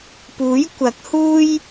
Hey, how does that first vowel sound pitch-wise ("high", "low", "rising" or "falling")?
rising